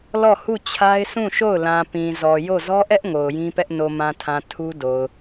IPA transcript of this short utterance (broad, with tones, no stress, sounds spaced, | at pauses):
l ɔ˦˨ h u˦˨ t͡ɕʰ a˦ ɪ̯ sʰ ũ˦˨ ʃ o˦˨ ʊ̯ l ã˨ p ĩ˨ z ɔ˨ j o˦˨ z ɔ˦ ʔ ɛ˦ ʔ ŋ o˨ ʊ̯ j ĩ˦ p ɛ˦ ʔ n o˨ m ã˨ tʰ ã˨ tʰ u˦ d o˨ ʊ̯